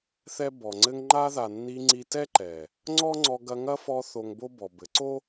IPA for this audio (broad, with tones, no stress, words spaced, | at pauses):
θɛ˦bɔ˨ŋ͡ǀɘ˦ŋ ŋ͡ǃa˦ða˨nːi˧ ŋ͡ǀi˧tɛ˦ǃɛ˨ | ŋ͡ǀɔ˦ ŋ͡ǀɔ˧ɡɐ˧ŋɐ˦fɔ˧ θo˧ŋbo˦bɔ˨bɘ˨˦ ǀo˦